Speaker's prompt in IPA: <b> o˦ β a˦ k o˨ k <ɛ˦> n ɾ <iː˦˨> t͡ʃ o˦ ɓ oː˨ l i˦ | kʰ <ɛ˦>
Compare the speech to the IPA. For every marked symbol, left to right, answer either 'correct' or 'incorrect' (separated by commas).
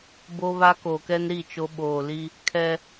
correct, correct, incorrect, correct